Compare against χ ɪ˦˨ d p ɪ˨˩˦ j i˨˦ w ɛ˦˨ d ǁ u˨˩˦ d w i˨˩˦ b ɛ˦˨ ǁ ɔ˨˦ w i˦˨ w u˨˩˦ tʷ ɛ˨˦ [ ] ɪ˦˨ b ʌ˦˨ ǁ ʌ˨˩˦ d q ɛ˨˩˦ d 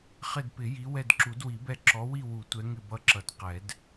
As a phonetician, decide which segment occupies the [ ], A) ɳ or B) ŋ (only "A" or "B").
B